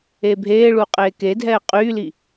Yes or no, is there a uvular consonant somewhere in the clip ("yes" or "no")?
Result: yes